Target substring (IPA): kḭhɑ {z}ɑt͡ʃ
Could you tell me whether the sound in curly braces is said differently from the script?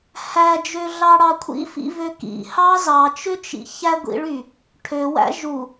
no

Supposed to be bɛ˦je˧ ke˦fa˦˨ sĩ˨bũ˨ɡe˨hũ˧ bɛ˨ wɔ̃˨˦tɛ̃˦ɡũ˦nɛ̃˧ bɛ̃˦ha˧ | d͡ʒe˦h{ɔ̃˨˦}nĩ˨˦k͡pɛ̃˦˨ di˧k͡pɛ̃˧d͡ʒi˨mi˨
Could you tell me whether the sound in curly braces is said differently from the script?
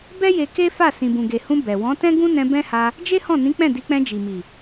yes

